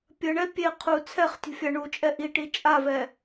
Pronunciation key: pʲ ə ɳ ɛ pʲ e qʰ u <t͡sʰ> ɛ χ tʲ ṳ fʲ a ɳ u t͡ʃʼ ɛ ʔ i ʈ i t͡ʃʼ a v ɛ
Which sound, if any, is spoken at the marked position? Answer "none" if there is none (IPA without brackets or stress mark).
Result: t͡sʰ